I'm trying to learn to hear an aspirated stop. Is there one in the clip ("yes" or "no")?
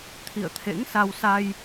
yes